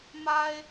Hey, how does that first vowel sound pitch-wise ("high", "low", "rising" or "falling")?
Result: high